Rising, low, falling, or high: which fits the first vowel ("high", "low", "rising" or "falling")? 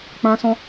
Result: high